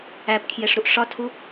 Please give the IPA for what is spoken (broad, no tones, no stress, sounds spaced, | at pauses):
æ p kʰ j e ʂ ɾ u ʔ ʂ ɒ tʰ u